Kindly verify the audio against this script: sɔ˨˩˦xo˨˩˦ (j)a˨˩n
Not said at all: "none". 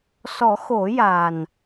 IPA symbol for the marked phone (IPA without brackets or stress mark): j